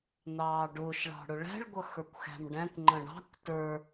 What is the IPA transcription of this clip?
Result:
n̪ ɑː ɖ ʊː ʃ ɭ ɑ̤ ɽ ʊ ɭ æ̤ ɭ ɡʷ ʌ x ə˞ kʷ x æ̤ m ɖ æ̃ kʷ ŋ͡ǃ ə̃ ɳ ɑ̤ kʷ t ə˞

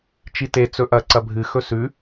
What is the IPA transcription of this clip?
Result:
t͡ʃ i t e t͡s ɵ ʔ ɐ ǀ ɐ bʱ ɨ x ɵ s ʉ

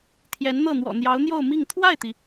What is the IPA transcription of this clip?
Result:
t̪ʰ j ɛ˧˥ n n̪ ɤ˥˩ n̪ w ɔ̰˨˩ n̪ j ɑ˧˥ ʊ̯ n̪ j o˥˧ ʊ̯ m i˥˧ ŋ t̪ʰ w a˥˩ ɪ̯ t̪ i˩

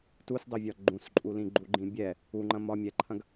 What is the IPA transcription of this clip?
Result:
t u s dˤ ɯ vʲ ɒ ɡ͡ǃ ũ s ǃʼ u l ĩ ɡ͡ǃ u ɡ͡ǃ ĩ bʲ ɛ | u ŋ͡ǃ ɐ̃ m ɒ mʲ ɛ ǃʰ ɐ̃ ɡ

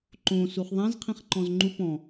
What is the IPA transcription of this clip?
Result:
ǃ õ s u χ ðˤ ã z qʰ ĩ χ ǃ ɔ̃ z ŋ͡ǃ u p ɔ̃

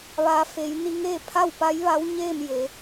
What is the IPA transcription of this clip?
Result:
ʋ a˩ f e˩˧ j n i˧ ŋ eː˥˨ pʰ a˥˨ w p a˧˥ j ʋ a˧˥ w ɲ eː˥˨ m j e˩˧

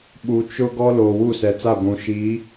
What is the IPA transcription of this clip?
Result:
ɓ u˨ t͡ʃ ʊ˦ ɡ ɔ˦ l oː˨ w u˦˨ s ɛ˨ t͡s a˦˨ ɡʷ ũ˨ ʃ i˨˦

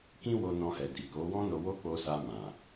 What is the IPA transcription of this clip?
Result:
k ĩ˦ w o˧ n ɔ̃˧ h ɛ˨ d i˨ k o˨˦ w ɔ̃˦ n o˧ w o˦ k͡p o˧ s a˧ m ã˨

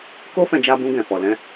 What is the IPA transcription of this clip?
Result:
k o˦ f ɛ̃˧ d͡ʒ a˧ b ũ˧ ɡ ɛ̃˨ f ɔ˨ l ɛ̃˧

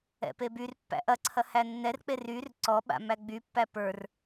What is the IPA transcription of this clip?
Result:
ɛ̰ p e b y r pː æ̰ ʔ ɐ ǀʰ ɐ h æ nː ɛ r k͡p e r y r ǀ ɔ ɓ a̰ m æ ɡ͡b y pː æ p ə˞ r

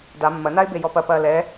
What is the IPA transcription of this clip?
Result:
d a mː ɐ n a ɪ̯ b e j ɔ p ɐ p ɐː l ɛ

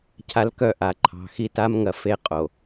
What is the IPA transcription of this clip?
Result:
cʰ a˦ l k œ˦˨ ʔ a˨ ǃʰ ɑ̤˨ x i˦˨ t a˦ m ŋ ɐ˨ f e˦ qʼ o˨

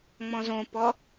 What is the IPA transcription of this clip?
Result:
ŋ͡m ɔ̃ z õ p ɔ

